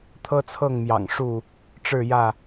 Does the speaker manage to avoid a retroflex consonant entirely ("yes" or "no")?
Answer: no